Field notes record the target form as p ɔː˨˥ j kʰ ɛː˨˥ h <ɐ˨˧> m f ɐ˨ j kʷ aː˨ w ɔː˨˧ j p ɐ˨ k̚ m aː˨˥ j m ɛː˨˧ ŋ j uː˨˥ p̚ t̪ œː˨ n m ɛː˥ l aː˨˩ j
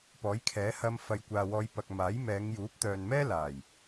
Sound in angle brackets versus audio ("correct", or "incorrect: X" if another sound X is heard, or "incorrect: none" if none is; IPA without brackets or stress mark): incorrect: ɐ˧